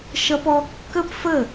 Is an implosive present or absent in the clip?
absent